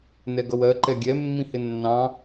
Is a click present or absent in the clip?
present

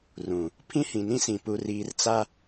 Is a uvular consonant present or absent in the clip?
absent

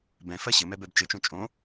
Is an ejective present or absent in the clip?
present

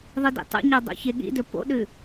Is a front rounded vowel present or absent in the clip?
absent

